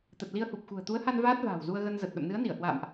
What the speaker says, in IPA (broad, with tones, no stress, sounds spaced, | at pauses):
t̪ ə˨˩ t̚ l i˧ ə̯ h u˨˩ p̚ x ṳ˨˩ ə̯ t̪ u˨˦ ə̯ h a˧ n v aː˦˥ t̚ v a̤ː˨˩ w z u˧ ə̯ ɣ ə˧ n z ə˨˩ t̚ ɗ ə̰˧˨ m n ɨ˨˦ ə̯ n i˧˩ ə̯ h w a̰ː˧˨ m ʔ